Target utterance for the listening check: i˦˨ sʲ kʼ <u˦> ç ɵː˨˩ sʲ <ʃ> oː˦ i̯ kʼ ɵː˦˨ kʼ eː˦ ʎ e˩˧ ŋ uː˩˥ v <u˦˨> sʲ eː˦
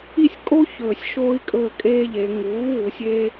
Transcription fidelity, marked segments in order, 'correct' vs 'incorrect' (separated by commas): incorrect, correct, incorrect